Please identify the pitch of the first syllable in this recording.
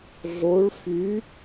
rising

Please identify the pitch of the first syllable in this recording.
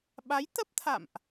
rising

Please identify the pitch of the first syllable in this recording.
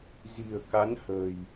low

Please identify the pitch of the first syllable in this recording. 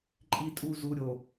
low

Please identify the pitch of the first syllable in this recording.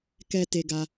high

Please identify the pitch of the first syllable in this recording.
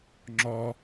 high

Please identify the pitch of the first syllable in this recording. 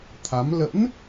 rising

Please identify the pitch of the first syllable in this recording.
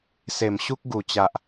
low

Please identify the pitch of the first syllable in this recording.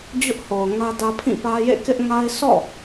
high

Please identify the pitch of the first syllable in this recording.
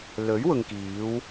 rising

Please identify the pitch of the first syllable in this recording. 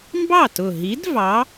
falling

